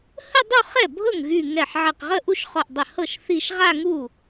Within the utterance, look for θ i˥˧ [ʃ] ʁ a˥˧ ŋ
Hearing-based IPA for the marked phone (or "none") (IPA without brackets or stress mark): ʃ